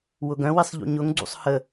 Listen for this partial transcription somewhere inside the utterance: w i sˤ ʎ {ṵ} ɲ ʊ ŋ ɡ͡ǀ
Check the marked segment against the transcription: correct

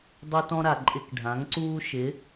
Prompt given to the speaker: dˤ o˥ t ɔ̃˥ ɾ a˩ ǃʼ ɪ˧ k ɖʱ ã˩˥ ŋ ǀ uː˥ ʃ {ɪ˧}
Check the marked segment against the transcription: incorrect: ɪ˩˥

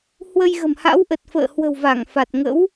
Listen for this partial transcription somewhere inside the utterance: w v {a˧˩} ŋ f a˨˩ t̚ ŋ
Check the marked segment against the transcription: correct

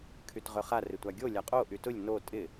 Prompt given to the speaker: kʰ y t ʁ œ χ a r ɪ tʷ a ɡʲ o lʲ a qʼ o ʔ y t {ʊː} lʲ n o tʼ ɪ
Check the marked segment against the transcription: incorrect: ʊ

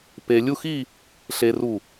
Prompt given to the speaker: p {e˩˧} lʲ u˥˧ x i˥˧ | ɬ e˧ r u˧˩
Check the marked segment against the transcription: incorrect: e˧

